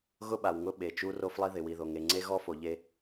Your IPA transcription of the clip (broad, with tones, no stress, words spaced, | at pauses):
ɣʊ˦ɓa˨wŋʊ˦ ɓe˨t͡ʃu˦ ro˦flˠi˦ðɪ˨ wi˨ðo˨ŋe˨ ŋ͡ǀe˦ɣɔ˦fo˨ʎe˦